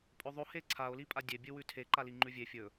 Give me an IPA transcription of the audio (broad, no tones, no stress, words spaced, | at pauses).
pʼɵðˤo heǀʰao̯ lipʼadʲe bʲɨwʉtʰe ǃaliŋ͡ǃʉvʲe fʲɵ